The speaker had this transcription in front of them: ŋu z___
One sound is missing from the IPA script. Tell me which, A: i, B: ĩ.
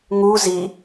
A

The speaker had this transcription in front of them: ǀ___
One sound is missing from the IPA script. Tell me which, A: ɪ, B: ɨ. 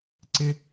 A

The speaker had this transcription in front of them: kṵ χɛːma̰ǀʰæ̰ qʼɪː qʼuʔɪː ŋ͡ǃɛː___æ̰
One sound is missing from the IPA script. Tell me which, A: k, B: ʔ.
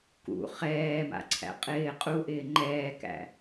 A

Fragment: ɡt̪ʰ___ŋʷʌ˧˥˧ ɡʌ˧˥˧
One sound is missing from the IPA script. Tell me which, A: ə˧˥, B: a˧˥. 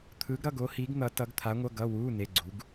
B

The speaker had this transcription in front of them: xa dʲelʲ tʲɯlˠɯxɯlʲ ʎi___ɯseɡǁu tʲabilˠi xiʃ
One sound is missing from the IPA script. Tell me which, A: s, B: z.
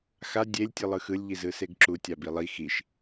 B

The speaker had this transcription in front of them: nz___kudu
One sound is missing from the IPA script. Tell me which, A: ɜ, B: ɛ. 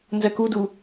A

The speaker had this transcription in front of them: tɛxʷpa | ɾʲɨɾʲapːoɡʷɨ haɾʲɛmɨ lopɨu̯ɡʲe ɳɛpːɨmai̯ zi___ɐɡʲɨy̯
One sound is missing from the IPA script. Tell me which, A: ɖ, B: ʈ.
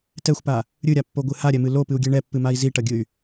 B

